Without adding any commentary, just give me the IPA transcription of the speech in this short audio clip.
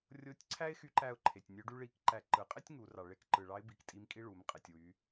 rʲ o˧˥ tʲ ǀʰ æ˥ ɪ̯ x y˧˥ ǃ æ˧ ʊ̯ ǃʰ e˩ tʲ nʲ ø˧˥ ɖ y˥ ɭ i˧˥ k ǃ æ˧ ǃ ɯ˩ qʼ e˥ tʲ ŋ u˩˧ r ɑ˩ ɭ e˧˥ k ǃ ɯ˩ ɭ ɑ˧˥ ɪ̯ b i˩˧ k tʼ i˧˥ m kʼ i˥ ɭ u˩˧ m qʼ e˩ tʲ w y˩˧

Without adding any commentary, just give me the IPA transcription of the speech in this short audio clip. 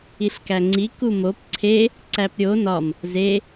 i ɬ k æ ŋ͡ǀ i k u m o p ǀʰ e | ǀ æ p ɾʲ o n ɒ m | z e

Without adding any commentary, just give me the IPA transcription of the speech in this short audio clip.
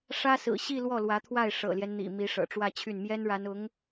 ʂ ä˥ s ɹ̩˨˩ ɕ i˥˧ l w ɔ˥˩ l w ä˧˥ t̪ʰ w a˥˩ ɪ̯ ʂ ɤ̰˨˩ l j ɛ˦ n n̪ ḭ˨˩ m i˧˥ ʂ ɤ̰˨˩ ʈ͡ʂ w ä˥˧ t͡ɕʰ y˥˩ n m j ɛ˥ n ɻ a˧˥ n ʊ˧˥ ŋ

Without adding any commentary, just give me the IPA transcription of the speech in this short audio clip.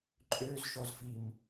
ǃʼ ø z ʃ ɔ z f i m

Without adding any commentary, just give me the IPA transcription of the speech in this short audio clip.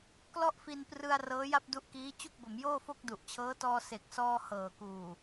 k l ɔ˥˩ ʔ f i˧ n p r ɯ˧ a̯ r ɤː˦˥ j a˥˩ p̚ d u˦˥ ʔ k iː˦˥ t͡ɕ u˥˩ k̚ b o˩˦ m j oː˥˩ f o˥˩ k̚ d u˨˩ ʔ t͡ɕʰ ɤː˦˥ t ɔː˧ s e˨˩ k̚ s ɔː˧ h ɤː˨˩ k uː˨˩

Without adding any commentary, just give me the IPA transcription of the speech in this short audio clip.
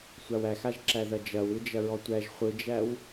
sʷ a w æ x a ʒ ǁ æ ð ɐ d͡ʒ ɐ w ɯ d͡ʒ ɐ ɹ ɔ tʷ æ ʒ χʷ ɯ d͡ʒ æ w

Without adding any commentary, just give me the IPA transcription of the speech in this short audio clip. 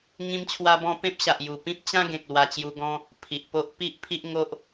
ŋ ĩ˦ m t͡ɕʰ w a˦ b ɔ̃˦ p ẽ˦ p̚ ɕ a˨ ʔ j u˨˩ p ĩ˦ p̚ t͡ɕ ã˦ ɡ ẽ˨ k̚ l w a˧ t͡ɕ j u˧ ɡ ɔ̃˦ | pʰ i˨ ʔ p o˦ ʔ p i˦ ʔ pʰ i˦ ʔ ŋ o˦ ʔ

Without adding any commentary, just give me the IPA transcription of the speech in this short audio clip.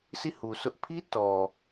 sʰ i˦˨ h u˨ sʰ ʊ˦ ʔ pʰ i˦ t ɔ˨

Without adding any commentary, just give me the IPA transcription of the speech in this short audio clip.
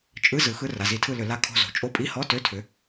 t͡ʃʼ ɯ˧˥˧ z ɯ˩˥ x ɯ˧˥˧ r a˩˧˩ z i˧˩˧ tʰ ɯ˦˨ l ʏ˧˩˧ l a˧˥˧ kʰ o̤˦˨ z o̤˩˧˩ t͡ʃʼ o˧˥˧ pʼ i˧˥˧ h ɔ˧˥˧ t ø˧˥˧ tʰ ʏ˩˥

